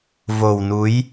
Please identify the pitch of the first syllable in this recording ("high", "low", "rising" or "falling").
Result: low